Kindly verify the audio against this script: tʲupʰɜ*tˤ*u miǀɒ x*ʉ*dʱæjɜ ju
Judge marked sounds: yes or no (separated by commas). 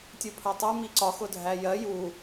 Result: yes, no